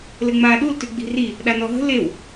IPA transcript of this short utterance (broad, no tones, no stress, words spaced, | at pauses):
lɘŋ͡maːɗul tʉɡ͡bi̤ri | ɗanɔɦə̤ lew